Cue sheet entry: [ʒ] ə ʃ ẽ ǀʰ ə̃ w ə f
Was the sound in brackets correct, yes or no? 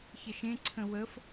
no